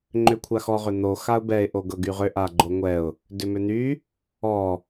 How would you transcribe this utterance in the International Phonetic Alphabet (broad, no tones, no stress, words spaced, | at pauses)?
ŋ͡ǃʏkʷʰaxɔ ʁʏn̪o xaʊ̯bɛɪ̯ ʔoɡɤɡyʁʏ ʔaɡ͡ǃoŋʷɛʊ̯ | dʏmʏn̪y | ɔ